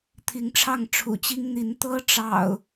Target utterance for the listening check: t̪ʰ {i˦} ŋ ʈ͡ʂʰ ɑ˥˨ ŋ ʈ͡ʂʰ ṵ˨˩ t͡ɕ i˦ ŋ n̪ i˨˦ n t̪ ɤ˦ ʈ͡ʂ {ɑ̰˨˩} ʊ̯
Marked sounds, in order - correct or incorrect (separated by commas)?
incorrect, correct